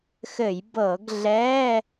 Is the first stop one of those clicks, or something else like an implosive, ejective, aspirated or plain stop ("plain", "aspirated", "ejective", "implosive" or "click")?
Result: plain